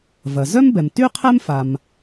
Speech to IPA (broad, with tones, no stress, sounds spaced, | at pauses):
v ɐ˩ z œ˥ m b ɛ˩ m t y˥ qʰ ɛ˥ m f a˩ m